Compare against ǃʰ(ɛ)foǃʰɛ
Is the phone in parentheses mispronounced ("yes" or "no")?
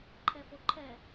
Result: no